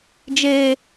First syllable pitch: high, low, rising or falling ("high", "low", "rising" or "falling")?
low